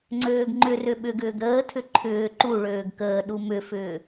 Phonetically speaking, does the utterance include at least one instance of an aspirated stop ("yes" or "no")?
yes